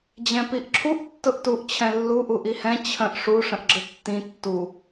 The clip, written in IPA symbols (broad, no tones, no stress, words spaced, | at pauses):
d͡ʑɛ̃piʔǁʰuʔ tːʊʔtuʔt͡ɕʰɛ̃ lːu ʔuʔihɛ̃ t͡ɕʰə̃ʔ ʂuʂə̃ʔɡ͡ǁə tːĩ tːu